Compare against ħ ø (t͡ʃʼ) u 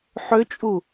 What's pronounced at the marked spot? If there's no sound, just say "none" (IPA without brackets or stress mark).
t͡ʃʼ